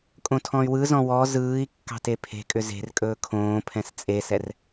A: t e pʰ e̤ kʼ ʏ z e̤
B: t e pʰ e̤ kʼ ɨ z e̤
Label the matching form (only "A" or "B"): A